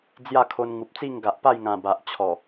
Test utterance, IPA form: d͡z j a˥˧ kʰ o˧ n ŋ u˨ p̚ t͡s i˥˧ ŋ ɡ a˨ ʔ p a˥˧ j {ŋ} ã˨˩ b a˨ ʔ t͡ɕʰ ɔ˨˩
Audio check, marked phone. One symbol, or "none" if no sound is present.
ŋ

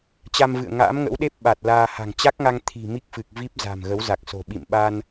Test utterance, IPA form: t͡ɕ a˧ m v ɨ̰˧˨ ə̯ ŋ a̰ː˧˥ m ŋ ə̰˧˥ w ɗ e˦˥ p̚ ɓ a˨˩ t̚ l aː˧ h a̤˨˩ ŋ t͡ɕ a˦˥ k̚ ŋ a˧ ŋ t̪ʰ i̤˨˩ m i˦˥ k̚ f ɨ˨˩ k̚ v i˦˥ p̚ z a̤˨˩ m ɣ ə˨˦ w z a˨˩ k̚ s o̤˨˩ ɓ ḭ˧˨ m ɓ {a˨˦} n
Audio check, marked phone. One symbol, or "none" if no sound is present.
a˧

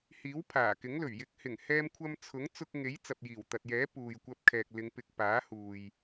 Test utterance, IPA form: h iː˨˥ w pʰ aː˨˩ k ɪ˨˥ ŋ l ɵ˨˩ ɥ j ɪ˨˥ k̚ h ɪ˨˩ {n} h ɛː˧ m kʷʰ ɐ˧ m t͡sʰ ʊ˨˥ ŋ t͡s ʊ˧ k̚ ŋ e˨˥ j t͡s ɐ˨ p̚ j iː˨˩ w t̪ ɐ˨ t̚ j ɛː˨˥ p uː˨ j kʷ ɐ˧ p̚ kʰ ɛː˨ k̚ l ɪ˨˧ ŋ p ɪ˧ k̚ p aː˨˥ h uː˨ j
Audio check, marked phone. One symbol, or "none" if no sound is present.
ŋ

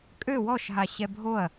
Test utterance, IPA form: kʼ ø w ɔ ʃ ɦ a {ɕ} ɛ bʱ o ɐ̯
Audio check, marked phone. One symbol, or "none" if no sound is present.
ɕ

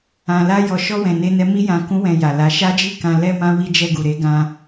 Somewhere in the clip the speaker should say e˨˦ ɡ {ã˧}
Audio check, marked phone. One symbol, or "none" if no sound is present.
ã˧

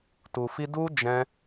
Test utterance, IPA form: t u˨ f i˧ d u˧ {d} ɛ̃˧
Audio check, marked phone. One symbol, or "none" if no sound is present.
d͡ʒ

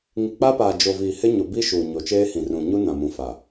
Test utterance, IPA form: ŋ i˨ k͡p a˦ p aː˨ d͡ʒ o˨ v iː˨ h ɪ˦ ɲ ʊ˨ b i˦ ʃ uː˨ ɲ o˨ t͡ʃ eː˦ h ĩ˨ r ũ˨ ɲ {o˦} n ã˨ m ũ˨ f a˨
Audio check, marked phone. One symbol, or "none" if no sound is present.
u˦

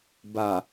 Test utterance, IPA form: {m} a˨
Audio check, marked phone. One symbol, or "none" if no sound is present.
b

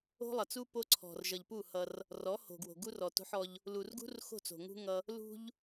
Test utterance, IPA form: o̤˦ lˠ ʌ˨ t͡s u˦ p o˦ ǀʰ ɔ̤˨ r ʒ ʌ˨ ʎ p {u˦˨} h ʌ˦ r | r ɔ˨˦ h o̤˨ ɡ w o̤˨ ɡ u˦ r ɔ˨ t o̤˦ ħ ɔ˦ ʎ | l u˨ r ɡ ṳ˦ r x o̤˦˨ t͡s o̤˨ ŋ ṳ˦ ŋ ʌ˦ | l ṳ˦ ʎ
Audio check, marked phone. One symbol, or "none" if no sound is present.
u˦˨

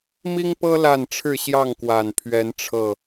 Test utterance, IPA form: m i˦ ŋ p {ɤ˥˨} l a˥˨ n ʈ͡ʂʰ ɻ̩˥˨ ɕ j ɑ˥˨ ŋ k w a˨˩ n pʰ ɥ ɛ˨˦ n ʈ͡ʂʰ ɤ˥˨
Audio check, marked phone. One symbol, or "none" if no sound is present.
ɤ˦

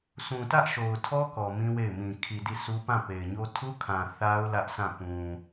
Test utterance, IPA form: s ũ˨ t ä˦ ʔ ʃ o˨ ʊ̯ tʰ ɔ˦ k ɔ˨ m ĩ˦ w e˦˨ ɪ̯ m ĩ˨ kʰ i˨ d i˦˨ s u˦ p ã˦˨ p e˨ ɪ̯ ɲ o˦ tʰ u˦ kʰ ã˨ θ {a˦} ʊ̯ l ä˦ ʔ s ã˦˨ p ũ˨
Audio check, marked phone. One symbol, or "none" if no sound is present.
a˦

